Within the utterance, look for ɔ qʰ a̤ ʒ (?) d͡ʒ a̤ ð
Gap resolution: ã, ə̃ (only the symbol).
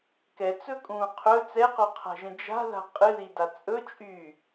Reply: ə̃